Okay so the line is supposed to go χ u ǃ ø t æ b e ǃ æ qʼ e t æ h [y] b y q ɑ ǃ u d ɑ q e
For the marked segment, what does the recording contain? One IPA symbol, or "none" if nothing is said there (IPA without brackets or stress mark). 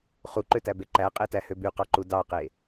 ø